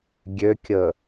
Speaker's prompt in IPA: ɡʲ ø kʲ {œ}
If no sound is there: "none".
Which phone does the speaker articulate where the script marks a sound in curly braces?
ə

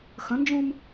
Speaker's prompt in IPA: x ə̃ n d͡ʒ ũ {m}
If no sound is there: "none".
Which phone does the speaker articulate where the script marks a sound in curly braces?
m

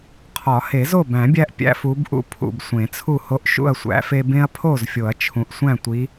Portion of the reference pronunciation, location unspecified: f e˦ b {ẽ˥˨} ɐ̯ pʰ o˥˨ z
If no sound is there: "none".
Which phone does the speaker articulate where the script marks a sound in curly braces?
ẽ˦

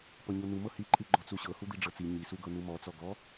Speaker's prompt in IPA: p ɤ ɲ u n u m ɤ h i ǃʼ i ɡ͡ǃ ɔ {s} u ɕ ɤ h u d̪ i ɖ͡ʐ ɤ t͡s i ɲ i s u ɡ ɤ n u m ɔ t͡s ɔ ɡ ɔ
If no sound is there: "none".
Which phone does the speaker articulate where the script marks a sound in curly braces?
t͡s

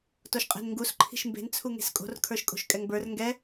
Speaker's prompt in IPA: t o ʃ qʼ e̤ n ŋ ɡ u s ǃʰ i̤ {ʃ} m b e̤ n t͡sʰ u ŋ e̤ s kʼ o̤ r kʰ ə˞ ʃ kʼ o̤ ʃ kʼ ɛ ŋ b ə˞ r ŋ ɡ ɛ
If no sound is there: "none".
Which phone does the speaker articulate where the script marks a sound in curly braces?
ʃ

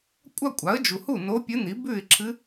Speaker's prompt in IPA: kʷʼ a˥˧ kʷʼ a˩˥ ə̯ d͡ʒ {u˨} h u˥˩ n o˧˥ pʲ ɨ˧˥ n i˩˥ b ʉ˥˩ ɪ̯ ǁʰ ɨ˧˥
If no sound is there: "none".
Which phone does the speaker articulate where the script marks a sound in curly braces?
u˨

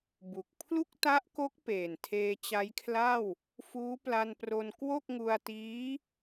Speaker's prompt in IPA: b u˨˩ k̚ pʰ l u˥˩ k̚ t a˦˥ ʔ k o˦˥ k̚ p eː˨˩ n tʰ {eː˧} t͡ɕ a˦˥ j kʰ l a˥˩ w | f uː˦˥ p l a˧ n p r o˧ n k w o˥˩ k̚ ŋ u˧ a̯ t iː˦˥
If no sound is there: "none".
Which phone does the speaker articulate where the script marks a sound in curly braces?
eː˧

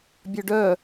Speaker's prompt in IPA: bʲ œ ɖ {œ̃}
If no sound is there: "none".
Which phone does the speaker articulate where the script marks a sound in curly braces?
œ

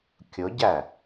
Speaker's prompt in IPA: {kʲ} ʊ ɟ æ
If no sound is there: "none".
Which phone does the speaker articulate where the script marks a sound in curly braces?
kʲ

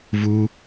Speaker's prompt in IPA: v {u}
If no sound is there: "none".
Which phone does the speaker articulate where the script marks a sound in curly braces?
uː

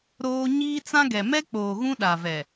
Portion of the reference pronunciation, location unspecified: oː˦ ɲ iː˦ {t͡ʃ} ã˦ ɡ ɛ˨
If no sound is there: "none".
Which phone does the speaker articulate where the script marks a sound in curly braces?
t͡s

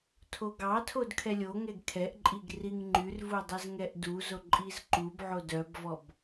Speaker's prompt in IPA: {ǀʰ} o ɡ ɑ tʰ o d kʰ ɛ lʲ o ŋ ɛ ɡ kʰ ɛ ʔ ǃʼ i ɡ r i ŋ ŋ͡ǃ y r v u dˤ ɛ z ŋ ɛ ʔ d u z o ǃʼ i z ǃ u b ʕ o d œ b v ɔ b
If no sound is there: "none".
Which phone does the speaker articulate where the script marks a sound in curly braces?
tʰ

